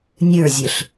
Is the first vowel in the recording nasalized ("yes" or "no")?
no